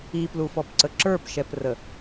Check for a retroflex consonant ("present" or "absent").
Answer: absent